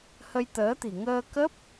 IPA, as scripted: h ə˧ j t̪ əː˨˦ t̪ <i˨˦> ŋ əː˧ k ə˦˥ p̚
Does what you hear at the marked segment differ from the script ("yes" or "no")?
yes